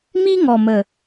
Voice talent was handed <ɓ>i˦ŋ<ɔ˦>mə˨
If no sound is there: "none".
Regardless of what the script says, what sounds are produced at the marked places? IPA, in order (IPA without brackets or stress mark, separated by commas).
m, ɔ˨